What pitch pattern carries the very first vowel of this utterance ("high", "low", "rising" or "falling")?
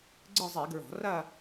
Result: falling